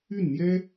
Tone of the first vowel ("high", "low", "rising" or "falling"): falling